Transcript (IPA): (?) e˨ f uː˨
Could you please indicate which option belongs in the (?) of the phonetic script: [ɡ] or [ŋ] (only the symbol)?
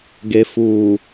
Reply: ɡ